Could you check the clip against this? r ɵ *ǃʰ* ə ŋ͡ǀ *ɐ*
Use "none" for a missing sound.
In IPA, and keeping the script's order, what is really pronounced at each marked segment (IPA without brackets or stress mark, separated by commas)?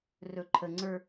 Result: ǃʰ, ə˞